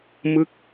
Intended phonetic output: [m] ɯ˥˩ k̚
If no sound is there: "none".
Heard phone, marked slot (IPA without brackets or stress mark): m